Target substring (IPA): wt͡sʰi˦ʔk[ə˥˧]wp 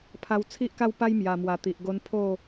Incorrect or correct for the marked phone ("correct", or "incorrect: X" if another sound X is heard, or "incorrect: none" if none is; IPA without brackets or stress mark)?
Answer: incorrect: a˥˧